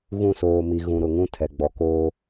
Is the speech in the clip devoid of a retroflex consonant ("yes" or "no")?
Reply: yes